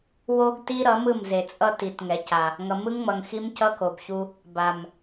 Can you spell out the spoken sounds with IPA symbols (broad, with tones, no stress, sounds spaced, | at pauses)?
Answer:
w o˦ ɡ t i˦ ɾ ʌ˨˦ m ɯ˦˨ m z e˨ t͡sʼ ʌ˦ t i˨ t ŋ ɛ˨ c a˨ | ŋ ʌ˨ m ɯ˦ ŋ ŋ͡m ʌ˨ ŋ x i˦ m c ʌ˦ k o˨ b ç u˦ | b a˨ m